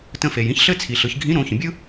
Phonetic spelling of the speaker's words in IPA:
t ə̃˧ f e˩ j ĩ˥ ç ɬ ɘ˥ t͡sʰ i˩ ɬ ɯ˩˧ ç ɡʱ ĩ˧˥ ɾ õ˩˧ ç ə̃˩ bʲ ɯ˥

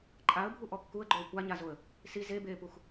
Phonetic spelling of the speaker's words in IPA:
ǃʼ a ə̯ bʱ u ʔ ɔ kː u ə̯ ɡ͡ǃ oː kʷ a ɲ a z o ə̯ | s i z e b eː p u x

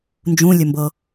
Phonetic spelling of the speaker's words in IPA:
n d͡ʒ ũ lʲ ɵ m b ɤ

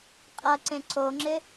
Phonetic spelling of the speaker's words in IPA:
qʼ ɐ ǀ ẽ ǀ o ŋ͡ǁ ɪ

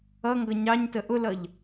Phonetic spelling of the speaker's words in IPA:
ʌ ŋ ɡ ʌ ɲ ɑ ɲ t ə ʔ ʊ l ʌ ʎ

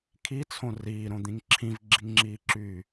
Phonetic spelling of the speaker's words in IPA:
kʰ i t͡sʰ õ r iː ɾ õ d̪ ĩ ŋ ǁʰ ĩ v ɡ͡ǁ i ŋ ŋ͡ǁ iː ǁ yː

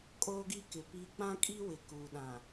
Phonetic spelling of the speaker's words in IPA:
kʼ oː˦ ɡ i˦ k ɪ˨ p i˦ k͡p ã˦ kʼ i˦ w ɪ˨ k uː˨ ɗ ã˨

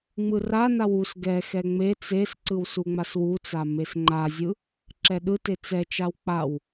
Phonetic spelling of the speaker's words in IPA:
ŋ͡m ɯ r a n a w u s ɡ ɛ x ɛ ŋ͡m e t͡s e s ǀ ɯ w s u ŋ͡m a s w u t͡s a m e s ŋ͡ǃ a zʲ ɯ | ǁ ɛ ɗ ɯ t e t͡s ɛ t͡ʃ a w k͡p a w

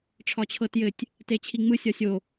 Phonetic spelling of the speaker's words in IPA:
ʈ͡ʂʰ ɒ t͡ɕʰ ɤ t j ɘ tʲ | t e t͡ɕʰ i ŋ͡m ɯ sʲ ɒ sʲ o

